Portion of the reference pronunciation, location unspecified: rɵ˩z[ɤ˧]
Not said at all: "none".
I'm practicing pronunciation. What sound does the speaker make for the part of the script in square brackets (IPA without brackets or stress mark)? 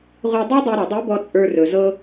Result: ɤ˧